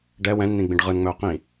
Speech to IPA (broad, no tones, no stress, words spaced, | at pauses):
ɖɛ wɛ̃nn̪ĩ ɡ͡bĩɖʁɯnŋ͡mɵʊ̯ qĩ